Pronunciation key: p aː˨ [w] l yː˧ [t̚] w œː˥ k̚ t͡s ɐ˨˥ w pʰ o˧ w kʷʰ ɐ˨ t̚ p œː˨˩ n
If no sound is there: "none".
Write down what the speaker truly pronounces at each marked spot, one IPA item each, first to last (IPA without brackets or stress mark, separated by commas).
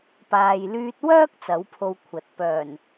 j, t̚